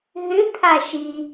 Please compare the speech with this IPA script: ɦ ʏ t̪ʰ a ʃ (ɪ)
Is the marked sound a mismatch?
yes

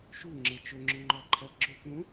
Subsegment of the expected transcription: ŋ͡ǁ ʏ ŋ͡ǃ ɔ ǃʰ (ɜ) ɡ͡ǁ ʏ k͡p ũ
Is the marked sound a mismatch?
no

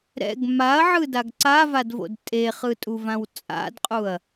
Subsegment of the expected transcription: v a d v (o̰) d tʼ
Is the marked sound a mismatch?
no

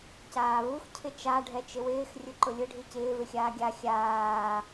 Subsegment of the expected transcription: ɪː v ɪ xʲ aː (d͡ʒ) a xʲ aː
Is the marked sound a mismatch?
yes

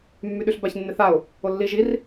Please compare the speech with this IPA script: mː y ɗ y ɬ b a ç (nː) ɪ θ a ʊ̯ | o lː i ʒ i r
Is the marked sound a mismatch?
no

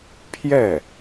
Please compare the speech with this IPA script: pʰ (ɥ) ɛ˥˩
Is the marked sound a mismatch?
yes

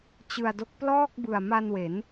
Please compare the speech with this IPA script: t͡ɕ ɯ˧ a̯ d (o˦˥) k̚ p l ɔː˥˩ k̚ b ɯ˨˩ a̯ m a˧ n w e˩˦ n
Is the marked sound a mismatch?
no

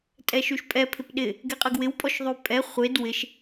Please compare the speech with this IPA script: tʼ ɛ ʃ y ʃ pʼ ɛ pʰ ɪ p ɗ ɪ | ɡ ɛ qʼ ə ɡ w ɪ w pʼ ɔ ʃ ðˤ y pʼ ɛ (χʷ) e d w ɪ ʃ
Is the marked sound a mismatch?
no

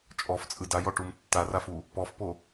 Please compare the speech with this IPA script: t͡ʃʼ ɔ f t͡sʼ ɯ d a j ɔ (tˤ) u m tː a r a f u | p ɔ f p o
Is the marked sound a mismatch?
yes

